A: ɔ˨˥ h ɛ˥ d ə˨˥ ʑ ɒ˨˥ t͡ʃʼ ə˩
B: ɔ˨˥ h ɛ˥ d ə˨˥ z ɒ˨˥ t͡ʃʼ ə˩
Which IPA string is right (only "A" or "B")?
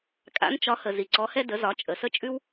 B